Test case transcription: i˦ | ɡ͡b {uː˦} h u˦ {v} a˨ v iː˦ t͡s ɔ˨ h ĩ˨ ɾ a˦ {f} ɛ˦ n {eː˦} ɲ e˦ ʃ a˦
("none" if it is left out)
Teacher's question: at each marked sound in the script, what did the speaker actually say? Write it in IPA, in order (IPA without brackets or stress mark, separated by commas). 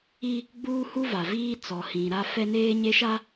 uː˦, v, f, eː˦